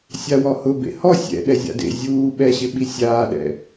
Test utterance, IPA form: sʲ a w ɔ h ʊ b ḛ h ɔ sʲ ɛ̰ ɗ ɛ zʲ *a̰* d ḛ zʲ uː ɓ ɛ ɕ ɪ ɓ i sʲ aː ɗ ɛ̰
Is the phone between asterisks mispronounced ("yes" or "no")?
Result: no